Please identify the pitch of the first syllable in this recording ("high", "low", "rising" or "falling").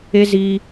high